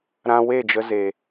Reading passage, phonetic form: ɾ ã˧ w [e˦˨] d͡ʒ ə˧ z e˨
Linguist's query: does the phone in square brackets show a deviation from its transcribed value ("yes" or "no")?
no